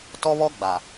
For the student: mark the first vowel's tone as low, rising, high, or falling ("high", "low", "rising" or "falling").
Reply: high